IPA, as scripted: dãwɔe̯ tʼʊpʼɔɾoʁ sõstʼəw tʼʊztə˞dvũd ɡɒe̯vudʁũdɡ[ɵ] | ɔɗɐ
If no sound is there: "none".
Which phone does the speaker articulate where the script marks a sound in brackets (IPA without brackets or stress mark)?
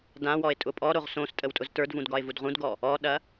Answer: ɔ